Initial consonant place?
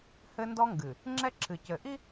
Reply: glottal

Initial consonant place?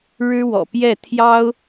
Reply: retroflex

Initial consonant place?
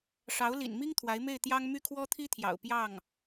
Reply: retroflex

